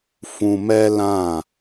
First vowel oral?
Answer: no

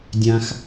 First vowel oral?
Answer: no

